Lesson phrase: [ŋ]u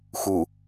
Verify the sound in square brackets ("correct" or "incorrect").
incorrect